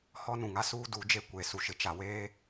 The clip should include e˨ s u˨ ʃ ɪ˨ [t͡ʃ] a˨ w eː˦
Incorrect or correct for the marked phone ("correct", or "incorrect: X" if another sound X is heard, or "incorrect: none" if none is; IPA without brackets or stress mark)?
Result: correct